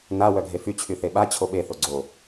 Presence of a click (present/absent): present